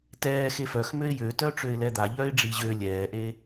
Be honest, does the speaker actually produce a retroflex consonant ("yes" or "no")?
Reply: yes